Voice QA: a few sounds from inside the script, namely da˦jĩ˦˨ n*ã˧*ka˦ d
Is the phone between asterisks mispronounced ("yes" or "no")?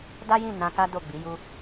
no